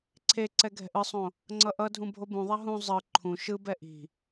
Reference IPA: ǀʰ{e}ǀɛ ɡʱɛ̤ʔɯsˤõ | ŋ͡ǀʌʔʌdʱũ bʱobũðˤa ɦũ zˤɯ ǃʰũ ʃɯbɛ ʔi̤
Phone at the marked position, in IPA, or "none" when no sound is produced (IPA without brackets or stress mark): e